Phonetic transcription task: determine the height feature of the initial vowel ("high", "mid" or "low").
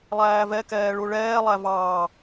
low